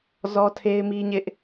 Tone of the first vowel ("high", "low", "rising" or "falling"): high